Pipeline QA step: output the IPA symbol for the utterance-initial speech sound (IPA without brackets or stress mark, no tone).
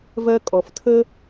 v